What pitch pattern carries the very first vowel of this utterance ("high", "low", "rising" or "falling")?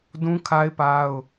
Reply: high